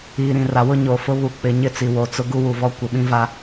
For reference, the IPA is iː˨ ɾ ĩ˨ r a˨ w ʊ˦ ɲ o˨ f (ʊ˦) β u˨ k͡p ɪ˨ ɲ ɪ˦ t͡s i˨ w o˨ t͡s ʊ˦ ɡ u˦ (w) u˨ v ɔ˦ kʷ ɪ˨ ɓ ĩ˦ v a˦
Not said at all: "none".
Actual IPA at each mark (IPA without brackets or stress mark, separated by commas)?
ʊ˦, w